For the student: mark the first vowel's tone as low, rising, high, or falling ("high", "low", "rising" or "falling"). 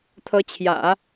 rising